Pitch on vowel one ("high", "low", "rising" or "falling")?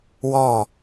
falling